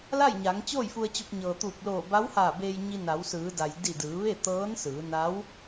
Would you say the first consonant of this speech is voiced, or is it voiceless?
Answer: voiced